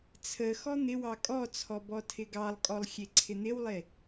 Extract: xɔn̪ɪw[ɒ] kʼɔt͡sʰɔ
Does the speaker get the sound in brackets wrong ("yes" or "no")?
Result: yes